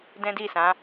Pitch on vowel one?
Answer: high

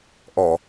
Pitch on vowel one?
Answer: low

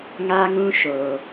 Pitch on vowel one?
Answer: high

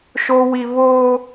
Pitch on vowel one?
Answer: high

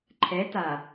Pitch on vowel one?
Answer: rising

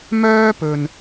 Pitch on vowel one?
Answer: high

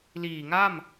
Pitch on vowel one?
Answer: low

